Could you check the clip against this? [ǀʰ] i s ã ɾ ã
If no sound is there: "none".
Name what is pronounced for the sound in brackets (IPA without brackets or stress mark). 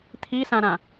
t̪ʰ